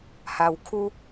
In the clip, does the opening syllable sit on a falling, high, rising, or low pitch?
low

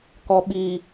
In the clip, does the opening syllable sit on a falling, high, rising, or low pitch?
low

